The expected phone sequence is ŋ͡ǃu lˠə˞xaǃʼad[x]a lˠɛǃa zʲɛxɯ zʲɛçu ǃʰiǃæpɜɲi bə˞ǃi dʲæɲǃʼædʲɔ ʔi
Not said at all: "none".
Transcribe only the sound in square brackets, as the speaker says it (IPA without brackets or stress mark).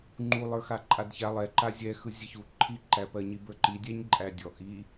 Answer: ç